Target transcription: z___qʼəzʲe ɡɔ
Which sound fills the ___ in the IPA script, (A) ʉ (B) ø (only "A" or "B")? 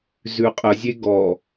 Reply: A